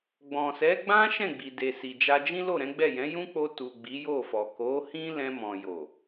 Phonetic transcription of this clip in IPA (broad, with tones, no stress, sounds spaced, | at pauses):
ɡ͡b ɔ̃˨ s ɛ˨˦ ɡ͡b ã˦ ʃ ɛ̃˦˨ ɡ͡b i˨ d e˨ s i˨ d͡ʒ a˧ d͡ʒ ĩ˦ l o˦˨ ɾ ɛ̃˨˦ ɡ͡b ɛ˦˨ j ɛ̃˨˦ j ũ˦ k͡p o˧ t u˨ ɡ͡b i˨˦ j o˦˨ f ɔ˨ k o˨˦ h ĩ˦ l ɛ̃˧ m ɔ̃˨ j o˨